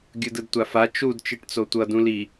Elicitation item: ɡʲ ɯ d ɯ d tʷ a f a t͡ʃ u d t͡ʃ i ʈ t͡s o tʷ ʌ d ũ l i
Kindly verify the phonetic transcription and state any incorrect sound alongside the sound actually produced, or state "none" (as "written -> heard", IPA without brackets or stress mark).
none